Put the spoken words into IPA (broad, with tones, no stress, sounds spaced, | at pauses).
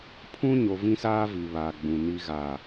pʰ ũ˦ ɲ o˨ v ĩ˦ s aː˦ v i˨ β aː˨ ɡ͡b ũ˨ n i˨ ɣ a˨